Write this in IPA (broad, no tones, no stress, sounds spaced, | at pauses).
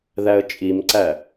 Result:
ð æ ə̯ t͡ʃʼ i m ǀ æ